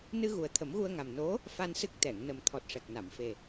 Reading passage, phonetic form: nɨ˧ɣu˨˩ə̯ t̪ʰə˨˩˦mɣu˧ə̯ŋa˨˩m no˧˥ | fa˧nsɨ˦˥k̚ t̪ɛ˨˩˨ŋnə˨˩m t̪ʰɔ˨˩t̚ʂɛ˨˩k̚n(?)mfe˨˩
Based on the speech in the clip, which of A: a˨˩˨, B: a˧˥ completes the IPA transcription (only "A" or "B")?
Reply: A